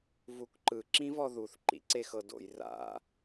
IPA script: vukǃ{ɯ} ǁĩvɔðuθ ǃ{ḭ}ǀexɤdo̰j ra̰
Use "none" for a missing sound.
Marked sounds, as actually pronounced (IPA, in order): ɯ, ḭ

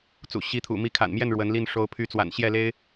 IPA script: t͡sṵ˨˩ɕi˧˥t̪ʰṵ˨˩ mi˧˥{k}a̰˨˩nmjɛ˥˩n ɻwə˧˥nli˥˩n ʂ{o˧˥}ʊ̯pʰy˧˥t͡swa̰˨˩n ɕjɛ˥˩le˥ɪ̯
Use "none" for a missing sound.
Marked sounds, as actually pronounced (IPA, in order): kʰ, o˧˥

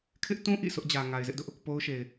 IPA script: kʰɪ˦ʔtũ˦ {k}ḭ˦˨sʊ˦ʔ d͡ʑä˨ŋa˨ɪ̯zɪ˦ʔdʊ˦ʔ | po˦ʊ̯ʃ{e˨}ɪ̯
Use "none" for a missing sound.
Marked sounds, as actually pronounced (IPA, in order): ʔ, e˨

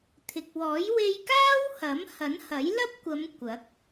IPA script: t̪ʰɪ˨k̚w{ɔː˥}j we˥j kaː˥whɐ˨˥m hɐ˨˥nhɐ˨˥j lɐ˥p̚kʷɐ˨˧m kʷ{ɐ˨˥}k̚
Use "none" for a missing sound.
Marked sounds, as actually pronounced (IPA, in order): ɔː˨˥, ɐ˨˥

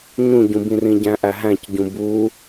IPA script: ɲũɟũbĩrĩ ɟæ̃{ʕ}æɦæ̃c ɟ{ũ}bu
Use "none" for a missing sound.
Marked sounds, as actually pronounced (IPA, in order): ʔ, ũ

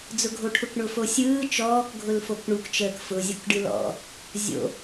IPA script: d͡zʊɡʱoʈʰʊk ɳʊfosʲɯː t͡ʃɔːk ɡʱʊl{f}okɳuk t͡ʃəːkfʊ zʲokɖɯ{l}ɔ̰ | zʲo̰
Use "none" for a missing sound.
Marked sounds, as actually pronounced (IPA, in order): f, l

